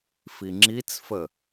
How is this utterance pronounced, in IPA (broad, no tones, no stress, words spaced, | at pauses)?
fiŋ͡ǁit͡sfə